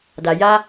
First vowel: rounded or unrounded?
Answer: unrounded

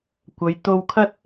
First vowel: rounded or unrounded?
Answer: unrounded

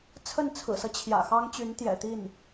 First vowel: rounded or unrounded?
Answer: unrounded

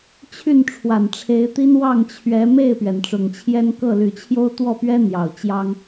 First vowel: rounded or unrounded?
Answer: rounded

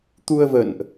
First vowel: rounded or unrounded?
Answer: rounded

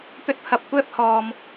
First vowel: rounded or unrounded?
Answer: rounded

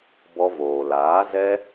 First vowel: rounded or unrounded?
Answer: rounded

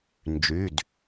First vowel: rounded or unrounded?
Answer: rounded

